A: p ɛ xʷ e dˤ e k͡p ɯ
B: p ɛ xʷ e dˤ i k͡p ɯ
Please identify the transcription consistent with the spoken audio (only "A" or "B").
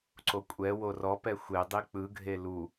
B